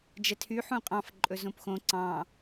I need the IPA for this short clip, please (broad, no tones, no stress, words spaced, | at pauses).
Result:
d͡ʒɛtʰy ħũqʼɑ̃f ǃʼɵzõpxõ ǀɑ̃